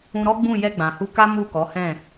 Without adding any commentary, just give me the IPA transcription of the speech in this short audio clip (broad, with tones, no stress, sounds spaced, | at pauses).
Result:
ũ˧ ɾ ɔ˦ ɡ͡b ũ˦˨ j ɛ˧ ɡ͡b ã˨ h u˧ k a˦ m u˦˨ k ɔ˨˦ h ɛ̃˦˨